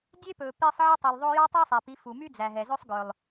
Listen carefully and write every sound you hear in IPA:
dʲ e˦ p ɵː˨ p i˧ sˤ ʕ i˦ tˤ y˨ lˠ ðˤ o˦ j ɑ˦ tˤ ɵː˦ sˤ æ˨ p i˨˦ f u˨ m y˦ d͡z æ˨ ɦ ɛ˨ z ɵ˦ sˤ ɡ ɵ˨ lˠ

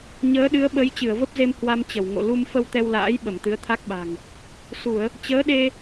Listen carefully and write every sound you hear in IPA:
ɲ əː˨˦ ɗ ɨ˨˦ ə̯ ɓ ə˨˦ j t͡ɕ ɨ˧˩ ə̯ v ə˦˥ p̚ z e˧ m h w a˧ m t͡ɕ ə˧˩ w ŋ o̰˧˨ l u˧ m f ə˧ w t̪ ɛ˧ w l a̰ː˧˥ j ɓ ə˧˩ m t̪ ɨ˨˦ ə̯ t̪ʰ a˦˥ k̚ ɓ a̤˨˩ ŋ | s u˧˩˨ ə̯ | t͡ɕ əː˨˦ ɗ e˧

